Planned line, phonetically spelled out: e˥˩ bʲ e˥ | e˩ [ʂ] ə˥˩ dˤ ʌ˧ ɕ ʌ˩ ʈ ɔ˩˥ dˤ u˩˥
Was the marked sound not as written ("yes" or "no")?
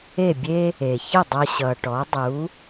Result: yes